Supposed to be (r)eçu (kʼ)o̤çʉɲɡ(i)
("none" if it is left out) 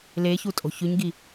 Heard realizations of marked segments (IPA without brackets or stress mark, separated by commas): l, tʼ, i